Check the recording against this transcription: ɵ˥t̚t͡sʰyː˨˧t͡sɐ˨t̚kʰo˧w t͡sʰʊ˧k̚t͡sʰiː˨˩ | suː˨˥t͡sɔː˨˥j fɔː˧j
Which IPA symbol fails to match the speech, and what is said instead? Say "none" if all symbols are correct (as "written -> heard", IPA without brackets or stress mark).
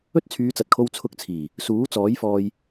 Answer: none